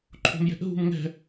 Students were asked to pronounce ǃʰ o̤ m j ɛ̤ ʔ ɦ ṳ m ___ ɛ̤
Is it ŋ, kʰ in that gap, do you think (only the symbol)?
ŋ